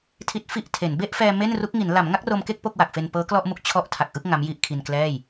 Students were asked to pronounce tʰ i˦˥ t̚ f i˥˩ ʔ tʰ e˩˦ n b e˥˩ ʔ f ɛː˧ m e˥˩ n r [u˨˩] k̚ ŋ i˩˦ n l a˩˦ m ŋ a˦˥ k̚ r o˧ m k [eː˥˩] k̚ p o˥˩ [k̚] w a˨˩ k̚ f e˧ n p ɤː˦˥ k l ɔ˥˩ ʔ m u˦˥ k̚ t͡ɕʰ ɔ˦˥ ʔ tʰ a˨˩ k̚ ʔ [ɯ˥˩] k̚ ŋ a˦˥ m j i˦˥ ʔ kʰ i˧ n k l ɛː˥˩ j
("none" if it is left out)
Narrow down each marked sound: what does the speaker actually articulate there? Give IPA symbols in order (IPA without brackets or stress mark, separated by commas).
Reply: u˦˥, e˥˩, k̚, ɯ˥˩